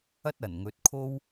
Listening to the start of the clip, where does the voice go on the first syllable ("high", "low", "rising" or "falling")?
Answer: high